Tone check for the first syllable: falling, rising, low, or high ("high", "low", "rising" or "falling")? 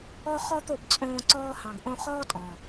high